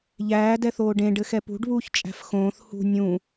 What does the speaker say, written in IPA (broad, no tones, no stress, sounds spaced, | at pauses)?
ʎ æː d ɛ θ oː ɖ ẽ ɖ ɘ x ɛ p ṳ ɖ β uː ç t͡ʃʼ æ̤ f x õː θ h ṳ nʲ ũ